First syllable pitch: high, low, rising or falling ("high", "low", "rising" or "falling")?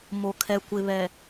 low